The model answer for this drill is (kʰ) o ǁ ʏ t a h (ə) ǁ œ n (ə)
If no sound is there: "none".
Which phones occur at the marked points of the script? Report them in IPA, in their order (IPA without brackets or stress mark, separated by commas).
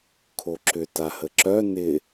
kʰ, ə, ɪ